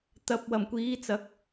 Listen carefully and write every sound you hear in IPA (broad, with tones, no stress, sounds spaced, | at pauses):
t̪ ɐ˨ p̚ w ɐ˨˩ m kʷ iː˨˧ t͡s ɐ˨˥ k̚